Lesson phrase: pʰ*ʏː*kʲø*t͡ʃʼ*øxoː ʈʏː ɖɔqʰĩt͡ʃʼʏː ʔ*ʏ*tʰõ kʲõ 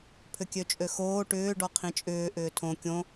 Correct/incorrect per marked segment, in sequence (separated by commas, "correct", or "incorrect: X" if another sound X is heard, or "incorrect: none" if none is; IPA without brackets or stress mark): incorrect: ʏ, correct, incorrect: ʏː